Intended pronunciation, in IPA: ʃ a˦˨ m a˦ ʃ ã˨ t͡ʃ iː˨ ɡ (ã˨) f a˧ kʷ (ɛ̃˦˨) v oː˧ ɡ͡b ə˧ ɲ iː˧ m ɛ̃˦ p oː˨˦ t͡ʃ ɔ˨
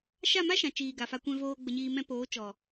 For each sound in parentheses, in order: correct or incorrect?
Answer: incorrect: a˨, incorrect: ɛ̃˧

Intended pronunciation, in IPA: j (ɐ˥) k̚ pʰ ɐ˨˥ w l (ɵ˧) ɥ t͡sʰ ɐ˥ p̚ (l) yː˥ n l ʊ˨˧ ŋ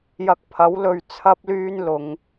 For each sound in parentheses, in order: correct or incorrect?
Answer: incorrect: ɐ˧, incorrect: ɵ˨, correct

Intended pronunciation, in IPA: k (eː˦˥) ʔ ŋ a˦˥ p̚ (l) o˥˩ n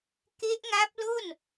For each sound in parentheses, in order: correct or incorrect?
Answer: incorrect: e˦˥, correct

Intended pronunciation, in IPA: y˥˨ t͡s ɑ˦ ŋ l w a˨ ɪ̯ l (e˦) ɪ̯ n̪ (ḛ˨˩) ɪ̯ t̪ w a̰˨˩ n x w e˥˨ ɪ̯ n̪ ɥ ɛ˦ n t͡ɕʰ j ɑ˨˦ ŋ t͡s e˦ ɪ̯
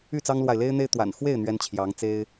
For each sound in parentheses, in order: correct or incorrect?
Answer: correct, incorrect: e˦

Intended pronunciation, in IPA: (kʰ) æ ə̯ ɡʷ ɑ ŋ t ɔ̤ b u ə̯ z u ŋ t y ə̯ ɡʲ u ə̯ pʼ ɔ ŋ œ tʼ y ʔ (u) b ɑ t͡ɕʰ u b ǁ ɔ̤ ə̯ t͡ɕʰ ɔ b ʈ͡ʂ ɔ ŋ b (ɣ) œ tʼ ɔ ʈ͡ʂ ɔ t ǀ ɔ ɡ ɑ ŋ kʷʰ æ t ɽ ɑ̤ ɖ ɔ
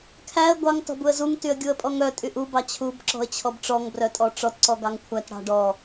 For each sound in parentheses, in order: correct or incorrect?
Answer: correct, correct, incorrect: r

